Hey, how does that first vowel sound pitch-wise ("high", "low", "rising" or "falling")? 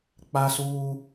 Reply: high